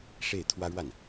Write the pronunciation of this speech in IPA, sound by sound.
ʂ e˥˩ ɪ̯ t̪ʰ w ä˥ ɻ w a˥˩ n

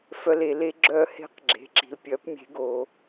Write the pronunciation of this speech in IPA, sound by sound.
f œ˧ l e˩˧ l e˧˥ ɡ͡ǁ œː˧ h e̤˧˥ q ɡ͡ǁ e̤˩˧ ǁ i̤˩ l pʲ œ˩˧ p mʲ e̤˩˧ ɡ oː˩

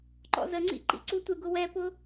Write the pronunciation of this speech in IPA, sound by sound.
ǃ ɔ̰ z ə ŋ͡ǀ ḭ ǃ ḭ ǀ u tʷ ɪ ɡ ʊ w ɛ p ʊ

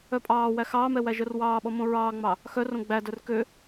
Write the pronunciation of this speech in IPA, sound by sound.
œ pʼ ɑː w æ x ɑː m ɛ w æ ʒ œ r w ɑː ɓ ɔ m õ ɹ ɑː ŋ͡m ɑ | x œ r õ ɡ͡b æ d œ r k ø

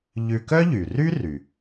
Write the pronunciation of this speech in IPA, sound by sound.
ʎ ʉ˧ k œ˥ ʎ y˩ r y˥ r y˩

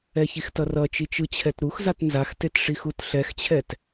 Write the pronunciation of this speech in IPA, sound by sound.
ɛ ç i x t ʌ r ʌ t͡ʃ i t͡ʃ ɯ t͡ɕʰ ɛ t ɾ u x z a t n z a x t e t ʂ i x u t ɬ ɛ x t͡ɕʰ ɛ t

